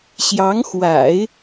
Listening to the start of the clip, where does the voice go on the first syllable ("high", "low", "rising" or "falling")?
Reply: rising